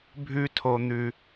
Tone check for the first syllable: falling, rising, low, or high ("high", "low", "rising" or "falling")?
high